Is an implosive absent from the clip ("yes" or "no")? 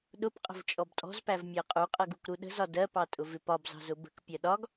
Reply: no